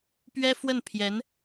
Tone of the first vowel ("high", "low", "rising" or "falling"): high